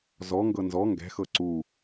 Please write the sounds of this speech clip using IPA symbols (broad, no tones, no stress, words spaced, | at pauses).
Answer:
zɔŋɡɤ nzɔ ŋɡɛ̤xɤ ǀu